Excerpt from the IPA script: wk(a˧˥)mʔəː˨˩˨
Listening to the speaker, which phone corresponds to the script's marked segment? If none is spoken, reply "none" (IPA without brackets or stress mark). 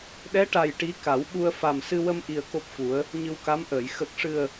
a˧˥